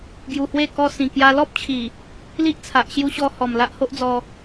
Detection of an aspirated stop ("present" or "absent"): present